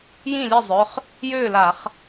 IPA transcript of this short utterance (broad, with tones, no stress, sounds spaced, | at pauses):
j ĩ˥˩ lʲ ɛ˥˩ zˤ œ˩˧˩ χ | j øː˥˩ l a˧˩˧ χ